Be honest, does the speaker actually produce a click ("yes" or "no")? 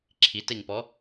yes